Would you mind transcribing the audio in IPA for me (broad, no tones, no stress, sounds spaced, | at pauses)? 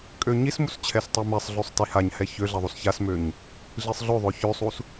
kʼ ø ɲ i s m u s t͡ɕʰ ɛ s tˤ ɛ m ɛ sˤ ɮ ø sˤ t i h a ɲ h ɛ ç ø ɮ ɛ ðˤ u s ç a s m ø ɲ | ɮ i sˤ ɮ ø ðˤ ø ç ø sˤ u s